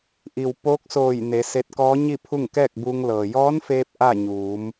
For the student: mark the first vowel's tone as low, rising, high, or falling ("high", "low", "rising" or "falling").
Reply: low